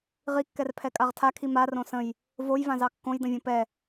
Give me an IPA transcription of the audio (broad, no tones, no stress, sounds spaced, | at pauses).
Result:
ʁ i kː ɛ r pʰ ɛ kʼ a ʁ tʰ a kʰ i m a r õ s ə̃ j | v o j v ã z ɑ kː õ j d ə̃ vʲ õ p ɛ